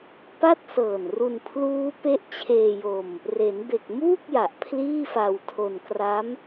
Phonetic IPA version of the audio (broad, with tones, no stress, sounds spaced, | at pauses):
p a˥˩ t̚ s ɤː˨˩ n r u˧ n pʰ l uː˦˥ p e˦˥ ʔ t͡ɕʰ eː˧ j o˧ m | r e˩˦ n b e˨˩ k̚ m uː˥˩ k̚ j a˨˩ ʔ pʰ l iː˥˩ f a˧ w tʰ o˧ n k r a˦˥ m